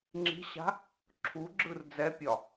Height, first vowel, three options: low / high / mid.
high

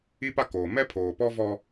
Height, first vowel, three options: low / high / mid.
high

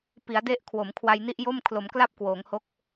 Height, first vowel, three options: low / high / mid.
high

